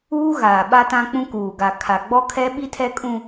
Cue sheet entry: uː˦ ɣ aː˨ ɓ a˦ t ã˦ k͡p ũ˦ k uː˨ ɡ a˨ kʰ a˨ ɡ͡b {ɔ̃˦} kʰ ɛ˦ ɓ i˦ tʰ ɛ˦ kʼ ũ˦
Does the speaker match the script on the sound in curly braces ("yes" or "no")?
no